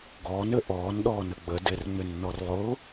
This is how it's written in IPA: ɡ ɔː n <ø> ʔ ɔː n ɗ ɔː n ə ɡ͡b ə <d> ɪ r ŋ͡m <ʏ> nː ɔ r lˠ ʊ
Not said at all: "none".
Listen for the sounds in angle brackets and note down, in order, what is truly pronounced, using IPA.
ø, d, ʏ

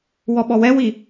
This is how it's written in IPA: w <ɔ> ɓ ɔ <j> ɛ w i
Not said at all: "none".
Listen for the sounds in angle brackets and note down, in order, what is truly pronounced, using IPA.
ɔ, w

